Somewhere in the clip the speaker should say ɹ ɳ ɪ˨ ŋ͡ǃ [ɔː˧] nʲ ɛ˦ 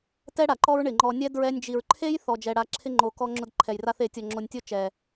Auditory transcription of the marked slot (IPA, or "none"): ɔ˧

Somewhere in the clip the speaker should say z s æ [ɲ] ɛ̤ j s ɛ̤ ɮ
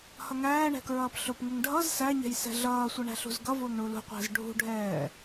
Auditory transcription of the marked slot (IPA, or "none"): ɲ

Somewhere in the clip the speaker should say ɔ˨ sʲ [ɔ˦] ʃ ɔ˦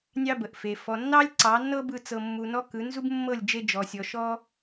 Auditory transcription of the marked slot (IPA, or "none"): ɔ˨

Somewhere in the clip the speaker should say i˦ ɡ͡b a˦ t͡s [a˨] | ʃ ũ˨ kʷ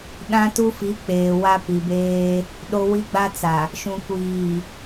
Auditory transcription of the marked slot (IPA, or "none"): a˨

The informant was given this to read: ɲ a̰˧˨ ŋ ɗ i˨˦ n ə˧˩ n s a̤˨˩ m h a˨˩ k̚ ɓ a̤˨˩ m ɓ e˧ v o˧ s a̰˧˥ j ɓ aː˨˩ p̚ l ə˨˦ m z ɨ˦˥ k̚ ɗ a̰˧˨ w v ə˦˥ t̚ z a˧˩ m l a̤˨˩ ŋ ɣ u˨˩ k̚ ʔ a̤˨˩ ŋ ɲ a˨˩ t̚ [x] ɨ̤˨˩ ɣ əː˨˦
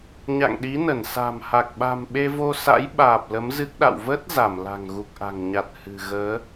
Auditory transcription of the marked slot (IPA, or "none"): h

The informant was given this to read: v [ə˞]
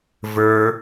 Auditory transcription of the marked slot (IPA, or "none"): ə˞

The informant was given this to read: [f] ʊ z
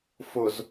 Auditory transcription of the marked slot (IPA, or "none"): f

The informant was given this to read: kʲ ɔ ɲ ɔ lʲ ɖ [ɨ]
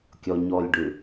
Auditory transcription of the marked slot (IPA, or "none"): ʉ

